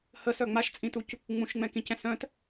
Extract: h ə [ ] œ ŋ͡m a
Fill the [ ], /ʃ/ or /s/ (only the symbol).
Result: s